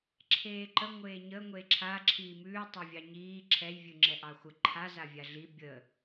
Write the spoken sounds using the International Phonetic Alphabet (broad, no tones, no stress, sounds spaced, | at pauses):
ǁʰ eː ǃ ə ŋʷ eː ɲ ə ŋʷ e ǁʰ a ǁʰ iː m ʉː tˤ ɛ vʲ ɑ ɲ iː ǁʰ ɛ j vʲ ʉ ŋ͡ǁ ɛ ʔ ɑ xʷ ə ǃʰ a z a vʲ a ɮ i bʲ ə